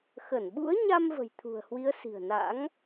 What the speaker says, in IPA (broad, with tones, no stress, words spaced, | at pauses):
xə˧˩nɓṵ˧˥ə̯ɲa˧m və̤˨˩jt̪ʰṳ˨˩ə̯hwi˨˦ə̯ si̤˨˩ə̯na̰˧˥ŋ